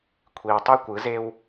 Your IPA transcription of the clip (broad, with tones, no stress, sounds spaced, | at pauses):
kʷʰ i˨ w tˤ y˦ kʷ ɯ˨˦ z e˦ w